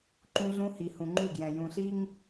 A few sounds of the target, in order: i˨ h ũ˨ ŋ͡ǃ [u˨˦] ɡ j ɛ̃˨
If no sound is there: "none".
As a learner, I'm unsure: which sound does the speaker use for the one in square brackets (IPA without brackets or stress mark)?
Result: u˦˨